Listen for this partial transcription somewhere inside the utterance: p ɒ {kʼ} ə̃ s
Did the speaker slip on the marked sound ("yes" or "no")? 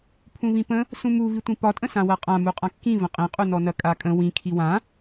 yes